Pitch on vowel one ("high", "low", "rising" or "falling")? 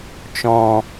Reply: low